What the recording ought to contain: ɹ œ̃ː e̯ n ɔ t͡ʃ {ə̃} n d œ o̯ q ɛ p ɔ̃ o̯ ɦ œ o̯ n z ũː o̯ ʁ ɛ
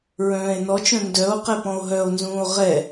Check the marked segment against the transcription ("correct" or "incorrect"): incorrect